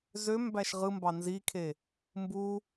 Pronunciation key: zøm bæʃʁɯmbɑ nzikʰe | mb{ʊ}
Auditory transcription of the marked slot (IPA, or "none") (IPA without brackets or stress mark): u